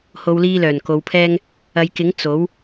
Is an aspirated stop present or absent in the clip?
present